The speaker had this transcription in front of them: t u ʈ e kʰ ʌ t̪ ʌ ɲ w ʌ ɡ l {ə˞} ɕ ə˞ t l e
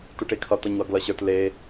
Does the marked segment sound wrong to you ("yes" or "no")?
yes